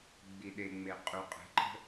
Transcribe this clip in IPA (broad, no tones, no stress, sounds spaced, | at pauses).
ɡ͡b i ɗ e ŋ͡m e qʼ u qʼ ə̤ ǃ ə̤